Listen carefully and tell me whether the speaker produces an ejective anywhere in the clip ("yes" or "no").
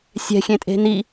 yes